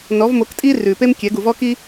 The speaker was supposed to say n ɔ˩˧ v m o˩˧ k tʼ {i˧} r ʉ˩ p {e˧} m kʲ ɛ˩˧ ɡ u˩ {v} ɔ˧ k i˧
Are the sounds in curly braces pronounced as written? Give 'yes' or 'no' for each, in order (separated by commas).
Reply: yes, yes, yes